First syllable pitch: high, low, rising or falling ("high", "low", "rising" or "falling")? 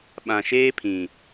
low